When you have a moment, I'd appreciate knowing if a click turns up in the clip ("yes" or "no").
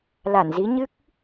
no